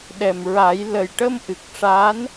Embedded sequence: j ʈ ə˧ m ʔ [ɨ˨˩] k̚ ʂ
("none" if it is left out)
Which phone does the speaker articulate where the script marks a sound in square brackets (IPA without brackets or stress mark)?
ɨ˨˩